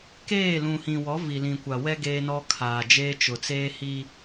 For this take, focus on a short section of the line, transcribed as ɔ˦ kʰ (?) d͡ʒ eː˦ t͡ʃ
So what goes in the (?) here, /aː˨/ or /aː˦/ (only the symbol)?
aː˨